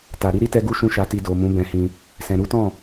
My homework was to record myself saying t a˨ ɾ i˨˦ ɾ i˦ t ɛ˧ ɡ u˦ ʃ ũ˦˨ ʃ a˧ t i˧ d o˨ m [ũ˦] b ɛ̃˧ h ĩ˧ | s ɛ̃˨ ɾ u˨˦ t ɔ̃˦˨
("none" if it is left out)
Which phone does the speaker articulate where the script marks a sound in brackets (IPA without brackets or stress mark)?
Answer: ũ˨˦